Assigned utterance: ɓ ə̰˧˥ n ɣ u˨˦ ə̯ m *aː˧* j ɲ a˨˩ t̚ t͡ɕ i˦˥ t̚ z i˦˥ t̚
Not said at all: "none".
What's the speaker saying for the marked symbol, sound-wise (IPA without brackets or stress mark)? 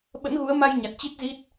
a˧